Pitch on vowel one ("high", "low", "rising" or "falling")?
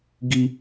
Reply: high